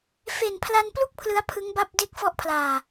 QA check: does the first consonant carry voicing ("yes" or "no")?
no